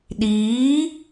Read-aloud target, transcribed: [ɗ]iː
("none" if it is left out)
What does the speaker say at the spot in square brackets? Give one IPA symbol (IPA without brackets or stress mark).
ɗ